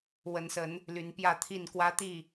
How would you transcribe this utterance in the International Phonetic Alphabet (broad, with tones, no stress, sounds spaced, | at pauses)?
w ə˨˦ n s ə˨˦ n | l y˨˦ n p j ä˥˨ t̪ʰ i˥˨ n k w ä˦ t̪ i˥˨